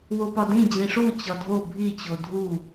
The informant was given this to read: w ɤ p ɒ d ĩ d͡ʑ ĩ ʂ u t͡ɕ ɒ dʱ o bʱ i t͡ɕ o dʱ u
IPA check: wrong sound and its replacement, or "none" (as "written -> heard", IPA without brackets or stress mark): ɤ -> o